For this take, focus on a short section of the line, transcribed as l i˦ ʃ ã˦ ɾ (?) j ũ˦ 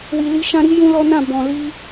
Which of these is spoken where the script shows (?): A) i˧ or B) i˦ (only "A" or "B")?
B